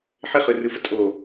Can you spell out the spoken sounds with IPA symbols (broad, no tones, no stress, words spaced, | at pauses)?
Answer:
ħɪχɯrɯfə tʼo